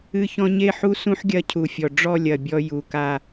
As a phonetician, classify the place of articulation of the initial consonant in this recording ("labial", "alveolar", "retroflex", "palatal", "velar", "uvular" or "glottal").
palatal